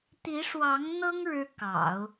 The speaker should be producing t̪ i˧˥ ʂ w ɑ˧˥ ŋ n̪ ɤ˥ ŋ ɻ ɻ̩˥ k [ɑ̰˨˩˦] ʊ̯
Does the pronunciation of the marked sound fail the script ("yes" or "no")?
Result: no